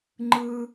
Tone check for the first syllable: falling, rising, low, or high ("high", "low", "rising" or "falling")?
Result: high